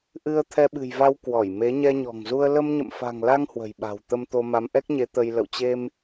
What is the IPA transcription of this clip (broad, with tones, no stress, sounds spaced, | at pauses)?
ʔ ɨ˧ ə̯ t̪ʰ ɛ˧ ɓ ɨ̤˨˩ j v a˧ w k w ɔ˧˩ j m e˨˦ ɲ ɛ˧ ɲ ɔ̤˨˩ ŋ z u˧ ə̯ l ə˧ m ɲ ə̰˧˨ m f a̤˨˩ ŋ l a˧ ŋ h w ə̤˨˩ j ɓ a̤˨˩ w t̪ ə˧ m t̪ o˧ m a˨˦ m ʔ ɛ˦˥ k̚ ɲ e˨˦ t̪ ə˧ j l ə̰˧˨ w t͡ɕ e˧ m